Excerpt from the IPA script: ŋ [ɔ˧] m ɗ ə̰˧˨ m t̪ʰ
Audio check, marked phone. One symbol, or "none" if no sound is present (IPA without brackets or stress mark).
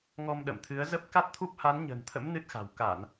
ɔ˧